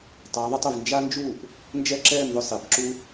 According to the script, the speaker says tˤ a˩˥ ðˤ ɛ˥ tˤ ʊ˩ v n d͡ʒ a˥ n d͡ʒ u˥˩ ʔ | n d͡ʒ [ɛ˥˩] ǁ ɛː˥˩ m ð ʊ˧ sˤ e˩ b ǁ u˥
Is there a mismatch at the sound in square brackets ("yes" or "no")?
no